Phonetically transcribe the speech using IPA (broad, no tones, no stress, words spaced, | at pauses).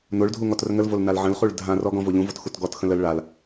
noɭdʱu ŋɔtrəŋəlvol nalʕə̃lχuɭ dʱãrɔ ɡɔ̃voʎũvot xutɡɔtxə̃l əl ɭal